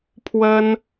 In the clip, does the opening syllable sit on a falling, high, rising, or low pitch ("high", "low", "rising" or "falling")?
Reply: high